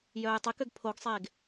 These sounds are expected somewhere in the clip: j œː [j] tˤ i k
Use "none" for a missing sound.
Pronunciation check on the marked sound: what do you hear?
j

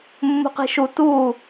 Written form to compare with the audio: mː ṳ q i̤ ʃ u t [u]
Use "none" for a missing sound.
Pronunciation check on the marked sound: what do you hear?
uː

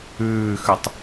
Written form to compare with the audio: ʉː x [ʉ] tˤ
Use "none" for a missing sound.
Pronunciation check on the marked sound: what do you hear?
ʉ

